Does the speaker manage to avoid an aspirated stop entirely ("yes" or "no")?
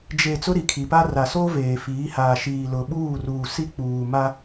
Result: no